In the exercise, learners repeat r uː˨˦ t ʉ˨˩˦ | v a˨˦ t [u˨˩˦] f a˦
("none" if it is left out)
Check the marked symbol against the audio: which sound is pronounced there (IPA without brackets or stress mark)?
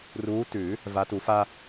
u˨˩˦